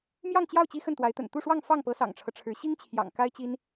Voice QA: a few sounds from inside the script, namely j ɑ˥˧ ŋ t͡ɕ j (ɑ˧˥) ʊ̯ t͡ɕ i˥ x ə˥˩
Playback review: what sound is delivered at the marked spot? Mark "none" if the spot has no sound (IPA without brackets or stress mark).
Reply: ɑ˥˩